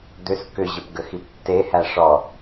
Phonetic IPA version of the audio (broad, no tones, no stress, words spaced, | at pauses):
d̪ʏs kʏʑəpɡəxip tːehæ ʂɔ